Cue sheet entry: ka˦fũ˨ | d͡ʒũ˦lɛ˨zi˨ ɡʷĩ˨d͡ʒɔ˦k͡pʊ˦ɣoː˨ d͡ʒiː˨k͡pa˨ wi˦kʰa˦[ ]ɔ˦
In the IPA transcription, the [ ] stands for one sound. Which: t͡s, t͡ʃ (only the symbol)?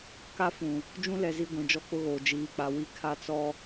t͡s